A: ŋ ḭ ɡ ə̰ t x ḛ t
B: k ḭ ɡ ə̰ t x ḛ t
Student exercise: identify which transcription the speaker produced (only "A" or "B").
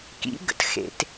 B